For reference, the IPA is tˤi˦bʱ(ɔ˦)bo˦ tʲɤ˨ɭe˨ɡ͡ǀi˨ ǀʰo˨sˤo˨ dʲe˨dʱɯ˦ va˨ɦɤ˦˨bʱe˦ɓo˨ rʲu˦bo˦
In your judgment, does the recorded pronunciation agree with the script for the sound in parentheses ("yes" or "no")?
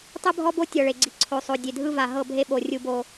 yes